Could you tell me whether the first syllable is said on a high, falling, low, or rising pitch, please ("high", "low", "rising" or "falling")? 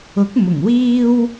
rising